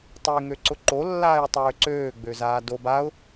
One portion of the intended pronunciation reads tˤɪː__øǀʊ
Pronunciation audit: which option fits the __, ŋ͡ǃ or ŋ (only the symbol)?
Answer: ŋ